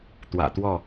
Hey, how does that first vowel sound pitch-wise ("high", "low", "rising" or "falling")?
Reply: low